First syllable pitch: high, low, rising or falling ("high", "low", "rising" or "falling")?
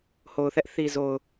low